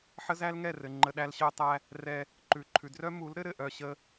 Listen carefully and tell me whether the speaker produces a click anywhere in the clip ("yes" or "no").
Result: yes